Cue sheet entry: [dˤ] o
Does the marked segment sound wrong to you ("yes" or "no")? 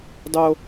no